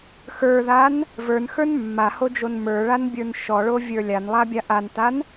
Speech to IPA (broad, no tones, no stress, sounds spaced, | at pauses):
x ə˞ ð a n | v ə˞ n x ə˞ n mː a h o d͡ʒ o n m ə˞ ɭ a n bʲ ə˞ n ʃ ɔ ɭ o vʲ ə˞ lʲ a n lˠ a bʲ a ʔ a n t a n